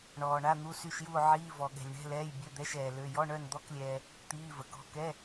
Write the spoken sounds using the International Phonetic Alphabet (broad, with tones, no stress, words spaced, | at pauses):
ɳɔː˨ɳa˧˥˧n̪u˧˥˧ sy˦˨ʃju˦˨o̯ ʕiː˧˥˧vɔ˨ɠɛ̤˨lʲɳɛ̤˧˥˧ lɛː˧˥˧j bʲø˧˥˧d̪ɛ˧˥˧ʃɛː˨ lø˧˥˧ jɔ˧˥˧ɳœ˦˨nd̪ɔ˧˥˧klʲɛː˨ | t̪iː˧˥˧və˨kɔ̤˧˥˧ kɛ˧˥˧